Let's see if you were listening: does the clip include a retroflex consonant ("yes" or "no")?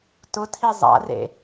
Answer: no